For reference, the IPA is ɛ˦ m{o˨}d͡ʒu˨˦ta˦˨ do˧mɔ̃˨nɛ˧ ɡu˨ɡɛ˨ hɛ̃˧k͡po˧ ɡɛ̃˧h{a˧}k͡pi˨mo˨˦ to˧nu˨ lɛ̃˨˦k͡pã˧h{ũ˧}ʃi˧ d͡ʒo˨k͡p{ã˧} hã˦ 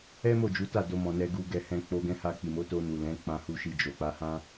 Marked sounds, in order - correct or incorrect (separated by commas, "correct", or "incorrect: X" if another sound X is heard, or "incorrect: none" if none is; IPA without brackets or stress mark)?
incorrect: o˦˨, correct, incorrect: u˧, incorrect: a˧